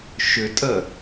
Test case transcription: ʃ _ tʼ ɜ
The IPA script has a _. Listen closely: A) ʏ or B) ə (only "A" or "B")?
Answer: A